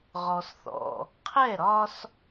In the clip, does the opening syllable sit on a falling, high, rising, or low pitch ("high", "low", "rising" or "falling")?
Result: low